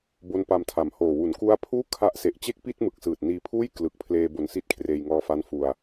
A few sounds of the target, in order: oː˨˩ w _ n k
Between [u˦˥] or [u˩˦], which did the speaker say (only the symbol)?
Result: u˩˦